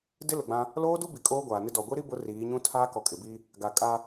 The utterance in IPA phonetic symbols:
d ɪ˦ l ʊ˨ ɡ͡b ã˦ | l oː˦ d u˦ b i˨ kʼ oː˦ ɡʷ aː˨ n ɪ˦ d ɔ˨ ɡʷ i˦ ɾ i˦ b ʊ˨˦ r iː˨˦ ɲ ũ˦ tʰ aː˦ k ɔ˨ kʼ ɪ˨ b i˦ | ɡ a˨ kʼ a˦

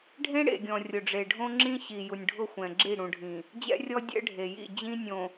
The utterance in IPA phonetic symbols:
ɖʱ ẽ˦ ɽ ḛ˨ ɡʲ ɔ̃˨ rʲ ʊ˨ ɖ͡ʐ e˨ ɖʱ õ˦ ŋ͡ǁ ĩ˦ ɕ i˨ j u˨ nʲ ɖʱ ʊ˦˨ xʷ ɛ̃˨ ɡ͡ǁ i˦˨ ɽ ũ˨ ɖʱ ĩ˨ | d͡ʑ ɛ̰˦ rʲ ɔ˦ dʲ ɛ̰˦ ɖʱ e˨ j ḭ˦˨ d͡ʑ ĩ˦ nʲ õ˨

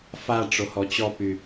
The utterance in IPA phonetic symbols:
f a ʈ͡ʂ o h ɔ t͡ɕ ɔ p y

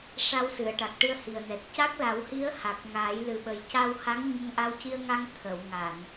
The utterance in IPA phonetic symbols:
ʂ a˧ w s ɨ˨˩˨ ə̯ ʈ a˨˩ k̚ ʈ ɨ˧ ə̯ h i˨˩ ə̯ n ɛ˨˩ t̚ c a˦˥ k̚ l a˨˩˦ w h i˧˥ ə̯ h a˨˩ k̚ ŋ aː˨˩˦ j l ɨ˨˩ ɓ ə˨˩˦ j c a˧ w h a˧˥ ŋ ɲ ə˧ ŋ ʔ a˧ w c i˧ ə̯ ŋ a˧ ŋ t̪ʰ ə˨˩˨ w ŋ a˨˩˨ n

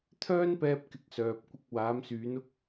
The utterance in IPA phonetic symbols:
t̪ʰ œː˥ n p ɛː˧ p̚ k ɪ˨˥ k̚ s œː˨ p̚ kʷ ɪ˧ k̚ w aː˨˧ m s yː˨˧ n ʊ˥ k̚

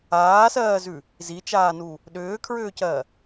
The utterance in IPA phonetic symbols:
aː s ɜː z ʉ | z i t͡ʃ aː n u | ɗ ʏː kʰ ɹ ʏː c ɜ

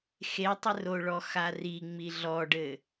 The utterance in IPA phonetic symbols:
x e tˤ ɘ r o ɭ ɔ x a r i ŋ͡m i ɮ ɔ ɖ ɘ

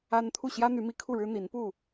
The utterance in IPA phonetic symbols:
a˦ n t̪ʰ u˥˨ ɕ j ä˦ n̪ y˨˦ m i˨˦ kʰ u˥˨ ɻ ɻ̩˦ n̪ i˨˦ n p u˥˨

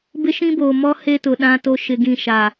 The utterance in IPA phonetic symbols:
b ɪ˦ ʃ ĩ˦ b oː˨ m ɔ˦ h e˦ t ʊ˨ ɗ ã˦ t o˦ ʃ ɪ˦ ɡ ĩ˦˨ ʃ a˨

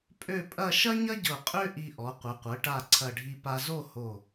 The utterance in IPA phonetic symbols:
pʼ ø˥˧ pʼ ɐ˥˧ ʃ ɐ˥ ɲ ɐ˥ ɟ ɤ˧˩ qʼ ø˥ ʔ i˧ ʔ ɔ˩˧ qʷ ɘ˩˧ qʷ ɤ˩˧ ʈ a˧˩ ǀʰ ɐ˧˩ ɖʱ i˧ p a˧ z o˥˧ h o˧˩

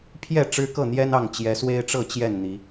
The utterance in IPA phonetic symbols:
pʰ j ɛ˥˨ ʈ͡ʂ ɻ̩˦ k ɤ˥˨ n̪ j ɛ˦ n ɑ˥˨ ŋ t͡ɕ j ɛ˨˦ s w e˦ ɪ̯ ʈ͡ʂ ɤ˥˨ t͡ɕ j ɛ˥˨ n n̪ i˨˦

